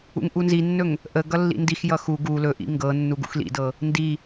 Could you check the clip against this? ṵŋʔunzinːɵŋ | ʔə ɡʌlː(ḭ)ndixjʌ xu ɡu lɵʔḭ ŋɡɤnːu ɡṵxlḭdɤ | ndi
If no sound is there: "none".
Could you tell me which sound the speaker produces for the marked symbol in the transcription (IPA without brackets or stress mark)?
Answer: ḭ